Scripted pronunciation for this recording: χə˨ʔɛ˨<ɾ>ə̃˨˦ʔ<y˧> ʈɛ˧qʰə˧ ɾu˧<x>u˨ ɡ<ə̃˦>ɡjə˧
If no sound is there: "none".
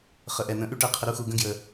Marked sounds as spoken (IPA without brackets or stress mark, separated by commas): n̪, y˦, x, ə̃˦